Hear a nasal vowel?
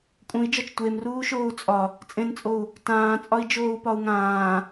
yes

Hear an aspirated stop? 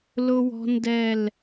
no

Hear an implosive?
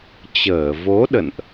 yes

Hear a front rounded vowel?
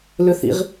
yes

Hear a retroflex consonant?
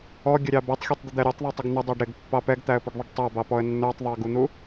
yes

